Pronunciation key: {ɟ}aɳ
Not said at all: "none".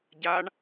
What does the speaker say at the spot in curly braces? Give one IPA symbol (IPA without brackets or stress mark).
ɟ